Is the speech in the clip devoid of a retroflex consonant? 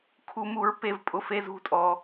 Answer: yes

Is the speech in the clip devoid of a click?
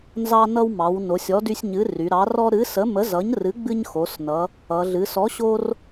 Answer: yes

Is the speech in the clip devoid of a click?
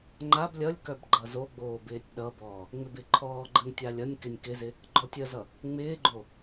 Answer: no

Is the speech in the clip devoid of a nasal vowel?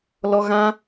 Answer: no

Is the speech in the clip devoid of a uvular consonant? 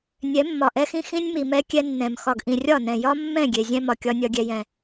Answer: yes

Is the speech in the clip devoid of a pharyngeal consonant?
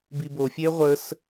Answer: yes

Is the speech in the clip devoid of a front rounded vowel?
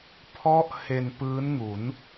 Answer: yes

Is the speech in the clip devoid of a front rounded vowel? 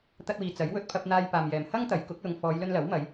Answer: yes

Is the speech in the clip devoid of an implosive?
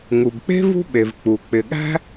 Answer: no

